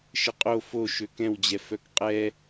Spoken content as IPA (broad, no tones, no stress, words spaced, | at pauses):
ʃəqʼo fo ʃøkɛ̃wd͡ʑɛ fœkqʼɛ